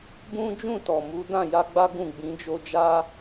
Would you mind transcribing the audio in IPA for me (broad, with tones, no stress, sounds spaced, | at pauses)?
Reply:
b ũ˦ d͡ʒ ũ˦˨ t ɔ˨ m u˨˦ d ã˦˨ j a˧ ɡ͡b a˦ ɡ ũ˦˨ ɡ͡b ĩ˨˦ d͡ʒ o˧ d͡ʒ a˧